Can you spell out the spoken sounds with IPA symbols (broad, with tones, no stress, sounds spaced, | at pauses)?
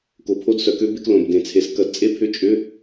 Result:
k o˩˧ pʰ o˧˥˧ d s œ˩˧ k ø˦˥ b e˧ k l õ˩ b d ẽ˩ t͡sʰ e˩˥ s k ɐ˩˥ d t͡sʼ e˦˥ pʰ ʏ˧˥˧ t͡ʃʼ ʏ˧˥˧